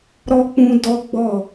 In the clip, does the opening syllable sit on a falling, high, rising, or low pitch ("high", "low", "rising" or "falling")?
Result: high